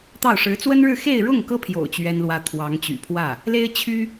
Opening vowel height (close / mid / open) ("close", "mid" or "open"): open